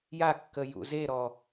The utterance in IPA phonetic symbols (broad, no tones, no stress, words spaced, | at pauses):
jakːə jṵzeɾɔ